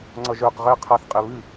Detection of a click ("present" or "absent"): present